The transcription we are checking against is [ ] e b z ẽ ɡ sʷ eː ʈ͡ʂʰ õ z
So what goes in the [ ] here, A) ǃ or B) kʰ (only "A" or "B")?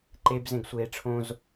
A